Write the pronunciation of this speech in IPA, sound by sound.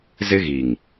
z ɪ˦ ɣ i˨ ŋ

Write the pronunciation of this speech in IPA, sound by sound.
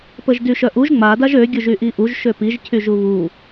p ə ʒ d y ʃ œ ʔ u ʒ ŋ͡m a d a ʒ ø ɡʲ u ʒ y ʔ i ʔ u ʒ ʃ ø p i ʒ cʰ y ʒ u β u

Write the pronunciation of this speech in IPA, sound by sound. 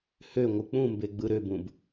h ø ŋʷ ɯ k͡p ũ m b e ɡ͡b ɯ ɾ ø b ũ b

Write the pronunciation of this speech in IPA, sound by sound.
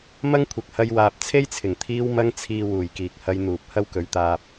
m ɐ˥ ŋ kʷʰ ɐ˨ k̚ h ɐ˧ j w aː˨ p̚ t͡sʰ e˥ j t͡sʰ ɪ˨˩ ŋ t̪ʰ iː˧ w m ɐ˧ ŋ t͡sʰ iː˨ w uː˨˩ j k iː˨ k̚ h ɐ˧ j n̪ uː˨ p̚ h ɐ˥ w k ɵ˨˥ ɥ t̪ aː˧ p̚

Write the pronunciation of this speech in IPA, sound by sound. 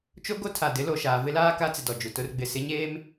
t͡ʃ o˦ ɡ o˦ tʰ a˨ d ɪ˨˦ l o˨ ʃ aː˨ v ɪ˦ l aː˦ k a˦ t͡s ɪ˨ d ɔ˨ d͡ʒ u˨ t ʊ˦ r ɡ͡b ɪ˨ s ɪ˦ ɲ eː˦ m

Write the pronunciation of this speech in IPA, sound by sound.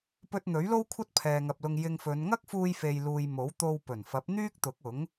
p ɵ˧ t̚ n̪ ɵ˨˥ ɥ l o˥ w kʷʰ ɐ˥ t̚ pʰ ɛː˨ ŋ ɐ˨ p̚ l ʊ˧ ŋ j ɪ˧ ŋ f ɵ˨˧ n ŋ ɐ˥ k̚ f uː˧ j f e˨ j l uː˨ j m o˨˥ w t̪ o˧ w p ɵ˨˩ n f ɐ˨˥ p̚ n̪ yː˥ k̚ t̪ ʊ˨˥ k̚ ʊ˨˥ ŋ

